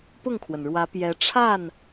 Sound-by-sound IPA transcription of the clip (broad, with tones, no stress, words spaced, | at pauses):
pʊ˥˩ŋkʰwə˩nɻwä˧˥ pjɛ˧˥ ʈ͡ʂʰa˥˩n